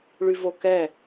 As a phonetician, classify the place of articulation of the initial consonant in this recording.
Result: retroflex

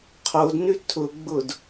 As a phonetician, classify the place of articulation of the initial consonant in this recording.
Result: uvular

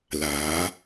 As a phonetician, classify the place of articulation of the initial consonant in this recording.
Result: alveolar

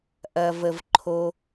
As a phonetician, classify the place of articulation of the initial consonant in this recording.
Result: glottal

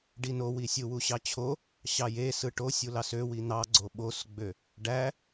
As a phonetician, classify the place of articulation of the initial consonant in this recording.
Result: retroflex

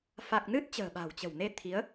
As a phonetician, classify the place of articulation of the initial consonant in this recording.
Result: labial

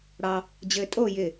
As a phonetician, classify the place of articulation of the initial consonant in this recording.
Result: retroflex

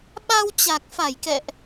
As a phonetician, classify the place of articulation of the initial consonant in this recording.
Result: labial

